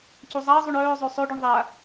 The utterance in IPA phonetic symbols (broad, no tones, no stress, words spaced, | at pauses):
cuzˤaɐ̯zˤuɳ œːzˤø sˤøɖyɳ ðˤa